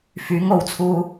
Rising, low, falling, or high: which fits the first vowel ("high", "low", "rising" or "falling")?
rising